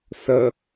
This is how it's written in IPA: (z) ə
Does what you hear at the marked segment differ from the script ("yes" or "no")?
yes